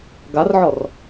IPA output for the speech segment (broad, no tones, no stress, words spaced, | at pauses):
ɡarʕɔr